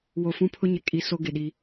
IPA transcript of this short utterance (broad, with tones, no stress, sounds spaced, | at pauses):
w o˨ f ũ˦ pʰ ʊ˦ ɲ ɪ˨ kʼ i˨ s o˦ ɡ ɪ˨ ɗ i˦